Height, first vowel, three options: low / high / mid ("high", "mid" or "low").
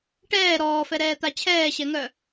mid